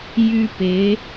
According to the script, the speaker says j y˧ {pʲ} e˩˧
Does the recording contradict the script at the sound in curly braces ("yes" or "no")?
yes